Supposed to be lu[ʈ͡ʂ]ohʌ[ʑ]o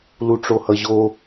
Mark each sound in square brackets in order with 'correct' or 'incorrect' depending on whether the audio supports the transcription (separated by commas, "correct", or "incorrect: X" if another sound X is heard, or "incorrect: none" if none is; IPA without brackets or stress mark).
correct, correct